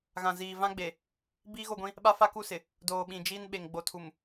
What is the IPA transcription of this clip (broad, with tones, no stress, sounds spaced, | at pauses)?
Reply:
ɣ ã˨ z iː˨ v ã˦ ɡ͡b e˨ | b iː˦ ɣ o˦˨ ɡʷ ĩ˦ | ɓ a˦ f a˦ k u˦˨ s ɪ˨ | d oː˨ ɓ ĩ˨ d͡ʒ iː˦ n ɓ e˨ ŋ ɡ͡b o˨ tʰ u˨ m